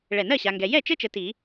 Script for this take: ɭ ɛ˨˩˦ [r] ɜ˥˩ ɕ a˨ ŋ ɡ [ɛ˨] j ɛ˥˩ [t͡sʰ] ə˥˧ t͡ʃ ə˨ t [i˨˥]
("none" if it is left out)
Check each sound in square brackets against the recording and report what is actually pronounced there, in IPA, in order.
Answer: n, ɛ˨, t͡ʃ, i˨˩˦

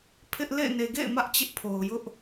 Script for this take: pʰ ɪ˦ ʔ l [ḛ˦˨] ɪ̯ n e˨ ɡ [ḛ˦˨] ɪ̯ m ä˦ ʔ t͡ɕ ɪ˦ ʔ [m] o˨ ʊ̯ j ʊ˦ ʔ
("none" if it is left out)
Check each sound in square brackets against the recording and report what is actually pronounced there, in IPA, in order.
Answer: ḛ˦˨, ḛ˦˨, pʰ

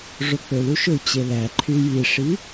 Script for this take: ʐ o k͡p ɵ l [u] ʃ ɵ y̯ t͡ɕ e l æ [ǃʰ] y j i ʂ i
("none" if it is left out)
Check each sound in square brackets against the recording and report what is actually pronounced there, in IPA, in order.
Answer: u, ǃʰ

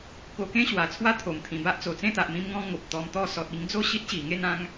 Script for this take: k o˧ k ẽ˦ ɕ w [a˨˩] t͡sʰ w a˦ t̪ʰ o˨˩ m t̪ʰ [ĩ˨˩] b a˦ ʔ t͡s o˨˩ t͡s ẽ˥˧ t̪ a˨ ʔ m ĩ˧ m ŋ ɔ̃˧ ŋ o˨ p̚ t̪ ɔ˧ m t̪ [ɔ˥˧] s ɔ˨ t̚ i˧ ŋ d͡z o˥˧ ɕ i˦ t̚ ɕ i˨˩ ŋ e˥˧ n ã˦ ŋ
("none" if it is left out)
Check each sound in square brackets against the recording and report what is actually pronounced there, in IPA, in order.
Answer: a˨˩, ĩ˨˩, ɔ˥˧

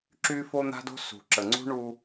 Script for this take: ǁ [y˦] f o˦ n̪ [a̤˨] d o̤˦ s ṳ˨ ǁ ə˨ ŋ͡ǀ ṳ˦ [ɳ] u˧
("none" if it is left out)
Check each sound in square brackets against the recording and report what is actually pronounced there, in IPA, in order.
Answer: y˦, a̤˦, ɳ

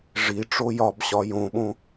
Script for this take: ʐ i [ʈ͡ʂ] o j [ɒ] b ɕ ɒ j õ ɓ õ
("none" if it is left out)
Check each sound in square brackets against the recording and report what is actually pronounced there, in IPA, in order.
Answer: ʈ͡ʂ, ɒ

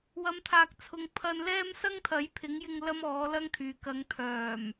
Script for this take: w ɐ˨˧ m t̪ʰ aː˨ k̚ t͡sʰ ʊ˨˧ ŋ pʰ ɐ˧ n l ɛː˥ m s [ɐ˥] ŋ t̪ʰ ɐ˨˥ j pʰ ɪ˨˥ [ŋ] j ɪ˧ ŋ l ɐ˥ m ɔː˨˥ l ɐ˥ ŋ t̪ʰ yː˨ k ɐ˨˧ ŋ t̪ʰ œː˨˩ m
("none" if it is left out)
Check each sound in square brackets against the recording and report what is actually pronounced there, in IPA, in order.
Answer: ɐ˥, ŋ

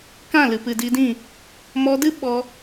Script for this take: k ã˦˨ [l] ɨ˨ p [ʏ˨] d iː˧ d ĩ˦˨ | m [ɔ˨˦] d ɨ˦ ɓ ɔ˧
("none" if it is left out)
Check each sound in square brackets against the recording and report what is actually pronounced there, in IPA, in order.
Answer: l, ɨ˨, ɔ˧

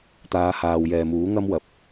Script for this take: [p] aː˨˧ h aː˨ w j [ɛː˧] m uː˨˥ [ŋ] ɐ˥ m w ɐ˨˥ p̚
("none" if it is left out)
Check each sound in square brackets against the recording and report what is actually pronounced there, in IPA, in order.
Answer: t̪, ɛː˨, ŋ

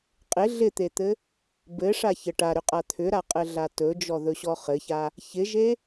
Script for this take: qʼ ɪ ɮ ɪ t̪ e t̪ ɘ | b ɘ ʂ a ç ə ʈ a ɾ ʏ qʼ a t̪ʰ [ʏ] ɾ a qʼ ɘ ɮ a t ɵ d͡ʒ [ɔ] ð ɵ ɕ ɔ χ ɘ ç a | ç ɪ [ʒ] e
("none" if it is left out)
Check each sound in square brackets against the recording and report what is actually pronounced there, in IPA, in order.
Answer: ʏ, ɔ, ʒ

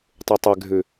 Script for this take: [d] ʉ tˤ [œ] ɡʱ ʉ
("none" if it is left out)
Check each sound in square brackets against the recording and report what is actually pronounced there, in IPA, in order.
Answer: tˤ, ɛ

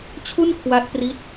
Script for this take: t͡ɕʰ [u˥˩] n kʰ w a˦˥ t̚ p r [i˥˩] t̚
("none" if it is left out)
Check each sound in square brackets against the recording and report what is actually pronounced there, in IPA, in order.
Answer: u˥˩, i˥˩

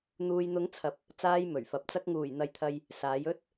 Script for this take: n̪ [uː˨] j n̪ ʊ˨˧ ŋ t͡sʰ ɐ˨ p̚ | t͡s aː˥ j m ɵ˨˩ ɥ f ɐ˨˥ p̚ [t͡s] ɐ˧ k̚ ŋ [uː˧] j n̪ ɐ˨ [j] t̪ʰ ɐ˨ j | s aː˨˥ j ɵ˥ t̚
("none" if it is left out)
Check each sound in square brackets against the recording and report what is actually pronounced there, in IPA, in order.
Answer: uː˨, t͡s, uː˨˩, j

